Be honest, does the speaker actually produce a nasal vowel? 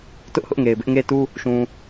yes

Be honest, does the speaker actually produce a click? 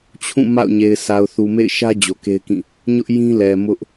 no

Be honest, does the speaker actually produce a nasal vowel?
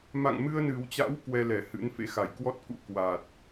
no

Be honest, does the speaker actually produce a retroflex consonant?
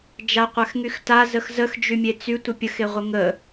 no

